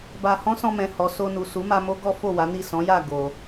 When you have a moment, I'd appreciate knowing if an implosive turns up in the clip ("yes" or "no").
no